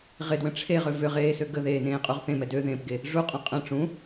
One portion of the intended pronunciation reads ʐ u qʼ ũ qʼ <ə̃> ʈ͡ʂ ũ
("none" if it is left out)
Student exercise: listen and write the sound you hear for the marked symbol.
ə̃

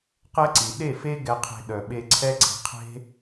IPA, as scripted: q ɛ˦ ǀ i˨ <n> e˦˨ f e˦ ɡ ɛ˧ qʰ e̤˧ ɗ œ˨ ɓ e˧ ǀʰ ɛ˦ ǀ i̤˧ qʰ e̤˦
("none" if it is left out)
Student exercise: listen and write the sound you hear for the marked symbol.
ɗ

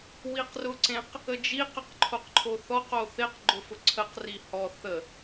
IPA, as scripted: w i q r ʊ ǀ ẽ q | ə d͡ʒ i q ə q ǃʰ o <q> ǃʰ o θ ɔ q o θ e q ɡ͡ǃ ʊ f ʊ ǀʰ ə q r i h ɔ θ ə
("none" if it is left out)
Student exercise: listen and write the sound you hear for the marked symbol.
q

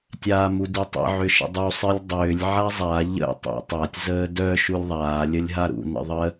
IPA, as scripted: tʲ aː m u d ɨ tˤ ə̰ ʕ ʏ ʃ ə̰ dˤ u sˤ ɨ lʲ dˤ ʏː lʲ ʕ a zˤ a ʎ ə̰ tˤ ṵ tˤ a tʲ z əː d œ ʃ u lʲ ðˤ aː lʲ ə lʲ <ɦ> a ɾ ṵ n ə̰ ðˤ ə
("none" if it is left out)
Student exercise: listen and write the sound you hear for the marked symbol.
ɦ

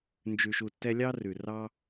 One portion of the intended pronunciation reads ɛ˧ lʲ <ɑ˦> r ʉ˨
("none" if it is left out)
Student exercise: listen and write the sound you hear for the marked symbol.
ɑ˦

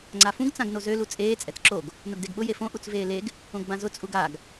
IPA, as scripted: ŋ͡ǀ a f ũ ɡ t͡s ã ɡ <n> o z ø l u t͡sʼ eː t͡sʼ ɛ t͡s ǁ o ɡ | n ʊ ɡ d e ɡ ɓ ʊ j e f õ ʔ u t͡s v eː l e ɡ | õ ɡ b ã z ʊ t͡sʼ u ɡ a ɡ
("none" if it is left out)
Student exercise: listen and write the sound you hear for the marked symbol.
n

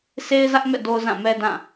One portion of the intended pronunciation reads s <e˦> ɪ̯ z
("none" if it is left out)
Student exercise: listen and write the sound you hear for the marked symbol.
e˦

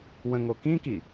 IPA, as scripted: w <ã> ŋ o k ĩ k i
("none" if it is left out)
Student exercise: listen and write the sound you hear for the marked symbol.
ə̃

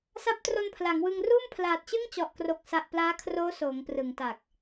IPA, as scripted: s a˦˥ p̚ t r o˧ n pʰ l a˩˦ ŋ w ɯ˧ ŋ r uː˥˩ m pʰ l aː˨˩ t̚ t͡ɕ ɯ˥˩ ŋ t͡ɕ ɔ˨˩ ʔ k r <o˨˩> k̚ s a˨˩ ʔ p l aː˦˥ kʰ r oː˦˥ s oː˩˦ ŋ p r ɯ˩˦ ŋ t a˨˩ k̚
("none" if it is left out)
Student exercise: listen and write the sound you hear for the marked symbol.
o˨˩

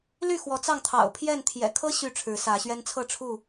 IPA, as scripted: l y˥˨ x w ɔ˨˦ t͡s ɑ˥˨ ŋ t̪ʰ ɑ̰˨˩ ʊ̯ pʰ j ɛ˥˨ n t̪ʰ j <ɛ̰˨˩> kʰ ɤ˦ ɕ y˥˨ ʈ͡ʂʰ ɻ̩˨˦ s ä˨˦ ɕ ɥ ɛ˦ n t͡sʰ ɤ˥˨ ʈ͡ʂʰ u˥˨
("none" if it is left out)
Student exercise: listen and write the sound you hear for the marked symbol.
ɛ̰˨˩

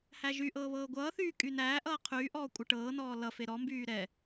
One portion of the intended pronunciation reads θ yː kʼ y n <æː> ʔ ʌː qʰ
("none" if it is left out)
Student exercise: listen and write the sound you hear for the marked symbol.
æː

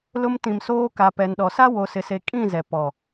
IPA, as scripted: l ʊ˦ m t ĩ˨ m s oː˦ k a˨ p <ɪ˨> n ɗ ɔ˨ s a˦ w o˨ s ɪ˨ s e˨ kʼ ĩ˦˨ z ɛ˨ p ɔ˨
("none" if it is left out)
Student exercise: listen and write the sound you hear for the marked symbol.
ɛ˨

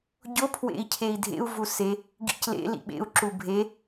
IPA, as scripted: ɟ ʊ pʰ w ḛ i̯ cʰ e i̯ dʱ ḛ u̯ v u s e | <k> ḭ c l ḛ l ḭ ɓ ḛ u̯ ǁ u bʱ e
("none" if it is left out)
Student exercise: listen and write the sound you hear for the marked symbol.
ɡ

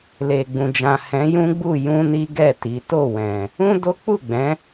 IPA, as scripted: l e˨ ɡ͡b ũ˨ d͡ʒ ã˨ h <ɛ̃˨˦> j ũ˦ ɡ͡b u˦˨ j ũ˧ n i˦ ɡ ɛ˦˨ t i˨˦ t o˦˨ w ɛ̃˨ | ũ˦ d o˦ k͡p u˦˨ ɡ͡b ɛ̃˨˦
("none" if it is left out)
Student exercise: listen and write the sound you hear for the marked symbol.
ɛ̃˨˦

